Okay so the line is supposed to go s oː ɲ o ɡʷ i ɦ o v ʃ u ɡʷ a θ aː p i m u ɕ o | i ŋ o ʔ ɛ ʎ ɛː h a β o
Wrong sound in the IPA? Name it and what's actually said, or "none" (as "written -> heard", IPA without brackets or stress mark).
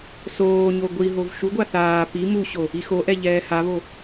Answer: ŋ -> x